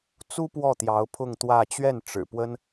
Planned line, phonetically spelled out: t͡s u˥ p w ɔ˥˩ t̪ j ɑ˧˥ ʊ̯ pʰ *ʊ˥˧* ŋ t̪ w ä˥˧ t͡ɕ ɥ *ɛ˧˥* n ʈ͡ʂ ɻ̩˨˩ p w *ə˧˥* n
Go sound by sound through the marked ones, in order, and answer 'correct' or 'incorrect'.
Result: correct, incorrect, incorrect

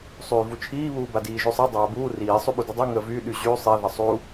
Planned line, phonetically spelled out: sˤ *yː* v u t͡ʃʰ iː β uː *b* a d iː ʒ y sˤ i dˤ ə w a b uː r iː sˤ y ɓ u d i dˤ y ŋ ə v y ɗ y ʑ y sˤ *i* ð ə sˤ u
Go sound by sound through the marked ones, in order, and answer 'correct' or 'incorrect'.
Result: correct, correct, correct

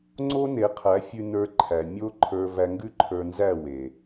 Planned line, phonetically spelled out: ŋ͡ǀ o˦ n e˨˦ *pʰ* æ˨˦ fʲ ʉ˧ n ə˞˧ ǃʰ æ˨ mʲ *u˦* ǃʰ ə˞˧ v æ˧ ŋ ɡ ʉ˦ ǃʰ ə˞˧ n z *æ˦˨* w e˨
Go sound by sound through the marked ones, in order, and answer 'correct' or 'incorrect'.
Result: incorrect, incorrect, correct

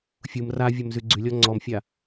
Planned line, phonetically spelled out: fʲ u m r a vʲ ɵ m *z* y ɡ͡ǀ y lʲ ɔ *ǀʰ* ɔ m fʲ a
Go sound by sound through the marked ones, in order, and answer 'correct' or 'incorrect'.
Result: correct, incorrect

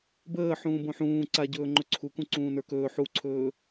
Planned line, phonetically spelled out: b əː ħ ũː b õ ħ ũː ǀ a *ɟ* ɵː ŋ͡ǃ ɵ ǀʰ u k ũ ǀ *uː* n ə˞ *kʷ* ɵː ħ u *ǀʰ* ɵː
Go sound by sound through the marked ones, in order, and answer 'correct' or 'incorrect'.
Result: correct, incorrect, incorrect, correct

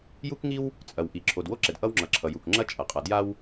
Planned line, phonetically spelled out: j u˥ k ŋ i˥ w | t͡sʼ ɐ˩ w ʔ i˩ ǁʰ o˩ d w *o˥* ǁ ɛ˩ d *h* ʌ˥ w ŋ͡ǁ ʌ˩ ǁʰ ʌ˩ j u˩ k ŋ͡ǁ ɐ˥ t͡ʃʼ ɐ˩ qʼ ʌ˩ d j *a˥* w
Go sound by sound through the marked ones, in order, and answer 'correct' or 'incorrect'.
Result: correct, incorrect, correct

